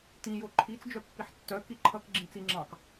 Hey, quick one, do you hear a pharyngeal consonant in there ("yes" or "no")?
yes